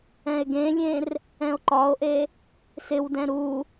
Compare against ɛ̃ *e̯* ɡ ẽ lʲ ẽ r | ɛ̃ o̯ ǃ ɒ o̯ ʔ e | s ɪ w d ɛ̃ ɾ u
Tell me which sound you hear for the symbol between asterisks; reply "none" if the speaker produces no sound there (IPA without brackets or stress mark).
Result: e̯